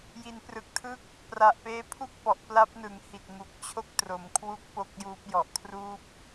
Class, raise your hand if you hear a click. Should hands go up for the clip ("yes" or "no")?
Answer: no